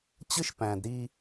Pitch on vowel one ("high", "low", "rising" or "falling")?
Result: high